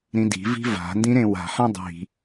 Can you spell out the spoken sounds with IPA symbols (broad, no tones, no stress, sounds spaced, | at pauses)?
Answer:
ɾ ĩ d i̤ v i̤ v a̤ n d ĩ ɾ ẽ w a̤ ħ ã dˤ i̤